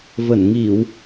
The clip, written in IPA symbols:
və˧˩nŋi˧˩˨w

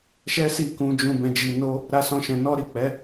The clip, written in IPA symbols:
ʃɛ˦si˦˨kũ˧d͡ʒũ˧ bɛ̃˧d͡ʒi˧ no˦ | ɾa˦sɔ̃˦ʃɛ̃˧ nɔ˦ɾi˦˨ k͡pɛ˨˦

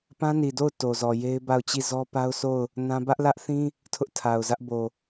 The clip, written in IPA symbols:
pã˦ni˨do˦˨ʊ̯ to˨zɔ˨ je˦ɪ̯ba˦˨ʊ̯t͡ɕi˦˨ zɔ˦pa˦ʊ̯so˦˨ʊ̯ | nã˦ bä˦ʔlä˦ʔθĩ˦ | tʰʊ˦ʔtʰa˨ʊ̯zä˦ʔbo˨

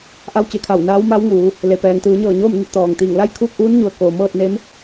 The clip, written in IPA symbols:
ʔa˧˥wt͡ɕe˩˧kʰa˧˩w naː˧˥wma˧˥wŋuː˩˧ | le˩pɛː˩ŋ t̪ɯː˩˧ɲɤː˧˩ ɲoː˥˨m ne˥˨t̚t̪ɔː˩ŋt̪iː˧˩ŋ la˥˨jkʰuː˥˨k̚ʔuː˧˥nɲu˩ə̯ koː˩mɤː˥˨t̚ne˧˥m

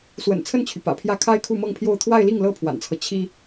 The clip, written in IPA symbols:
swə̰˨˩nt͡sʰə˥˩nt͡ɕʰy˩ pä̰˨˩pʰjä˥˩ kʰa˥ɪ̯kʰu˥˧mɤ˥˧ŋpʰjo˥˧ʊ̯ t̪ʰwa˥˧ɪ̯li˥˩ŋ lɤ˥pʰwa̰˨˩nt͡sʰɤ˦ t͡ɕʰi˥

